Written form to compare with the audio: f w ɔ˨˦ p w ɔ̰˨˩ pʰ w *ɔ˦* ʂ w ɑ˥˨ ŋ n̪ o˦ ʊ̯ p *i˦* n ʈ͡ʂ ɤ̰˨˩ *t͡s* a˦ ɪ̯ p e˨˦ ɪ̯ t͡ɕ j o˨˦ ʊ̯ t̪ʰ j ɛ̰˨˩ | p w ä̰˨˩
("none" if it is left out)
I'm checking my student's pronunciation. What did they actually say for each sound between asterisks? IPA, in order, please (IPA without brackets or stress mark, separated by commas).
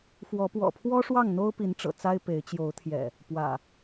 ɔ˦, i˨˦, t͡s